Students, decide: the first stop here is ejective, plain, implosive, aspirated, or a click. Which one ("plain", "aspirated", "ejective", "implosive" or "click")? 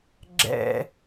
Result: click